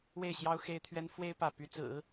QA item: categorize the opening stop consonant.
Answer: aspirated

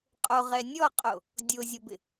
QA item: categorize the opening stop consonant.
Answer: ejective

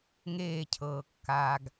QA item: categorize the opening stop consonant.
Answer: aspirated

